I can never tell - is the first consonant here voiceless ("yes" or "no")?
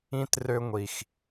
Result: yes